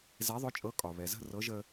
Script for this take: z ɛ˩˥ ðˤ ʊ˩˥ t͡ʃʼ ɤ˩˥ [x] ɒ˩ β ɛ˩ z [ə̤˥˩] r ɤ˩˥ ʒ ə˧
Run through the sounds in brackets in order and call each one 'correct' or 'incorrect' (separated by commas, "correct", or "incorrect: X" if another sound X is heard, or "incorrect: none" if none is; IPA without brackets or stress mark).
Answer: incorrect: kʼ, correct